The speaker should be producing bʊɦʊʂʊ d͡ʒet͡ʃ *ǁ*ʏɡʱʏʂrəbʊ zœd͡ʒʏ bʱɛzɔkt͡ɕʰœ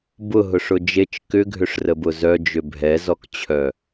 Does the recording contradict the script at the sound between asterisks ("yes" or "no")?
yes